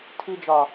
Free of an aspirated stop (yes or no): no